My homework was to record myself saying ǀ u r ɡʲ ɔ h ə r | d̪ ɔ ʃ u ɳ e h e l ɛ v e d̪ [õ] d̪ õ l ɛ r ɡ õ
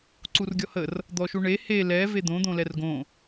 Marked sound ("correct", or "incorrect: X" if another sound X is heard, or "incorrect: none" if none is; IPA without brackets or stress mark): correct